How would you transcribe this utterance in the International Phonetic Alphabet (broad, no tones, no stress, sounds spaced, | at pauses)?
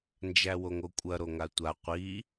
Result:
n d͡ʒ æ w o ŋ o kʷʼ ɐ ɾ o ŋ a tʷ a qʷ i